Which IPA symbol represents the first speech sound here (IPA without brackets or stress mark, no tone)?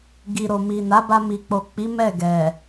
ɡ